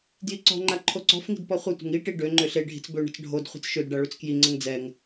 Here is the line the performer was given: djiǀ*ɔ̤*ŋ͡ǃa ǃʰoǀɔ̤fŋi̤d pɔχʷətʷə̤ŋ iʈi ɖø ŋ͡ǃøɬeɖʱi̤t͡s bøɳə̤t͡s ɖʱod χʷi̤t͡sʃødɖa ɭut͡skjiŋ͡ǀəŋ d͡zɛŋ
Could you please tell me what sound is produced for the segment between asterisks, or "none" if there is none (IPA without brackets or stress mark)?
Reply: ɔ̤